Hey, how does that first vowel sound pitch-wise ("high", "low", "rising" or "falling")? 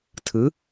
rising